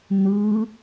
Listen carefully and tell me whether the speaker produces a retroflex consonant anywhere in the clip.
no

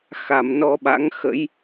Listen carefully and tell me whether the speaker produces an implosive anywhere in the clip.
yes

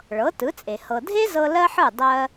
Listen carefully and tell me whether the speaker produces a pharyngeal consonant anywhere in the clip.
yes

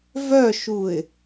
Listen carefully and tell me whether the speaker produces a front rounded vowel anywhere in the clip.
yes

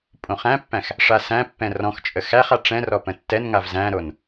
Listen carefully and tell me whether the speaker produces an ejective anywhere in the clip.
yes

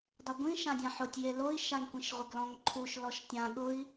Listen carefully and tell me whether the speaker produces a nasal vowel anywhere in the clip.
yes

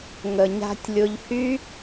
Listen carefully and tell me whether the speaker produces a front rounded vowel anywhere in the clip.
yes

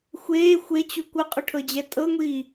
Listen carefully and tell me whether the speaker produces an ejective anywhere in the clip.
yes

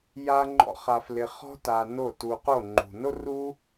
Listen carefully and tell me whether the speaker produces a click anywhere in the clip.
yes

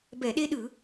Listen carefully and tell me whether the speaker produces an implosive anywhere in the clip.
yes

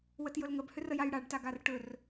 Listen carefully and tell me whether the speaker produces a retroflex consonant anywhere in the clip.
yes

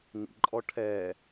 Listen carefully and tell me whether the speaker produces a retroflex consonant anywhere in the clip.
yes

